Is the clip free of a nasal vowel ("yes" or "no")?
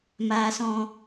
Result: no